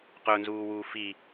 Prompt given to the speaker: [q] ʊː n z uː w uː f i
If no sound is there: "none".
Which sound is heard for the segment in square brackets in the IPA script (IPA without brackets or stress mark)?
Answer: q